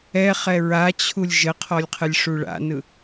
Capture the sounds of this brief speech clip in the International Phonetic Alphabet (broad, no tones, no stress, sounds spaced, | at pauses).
ɛ χ ɛ ɹ a t͡ɕʰ u lʲ ʒ ə qʰ ɔ lʲ qʰ ə lʲ ʂ u ɭ a̰ n ɯ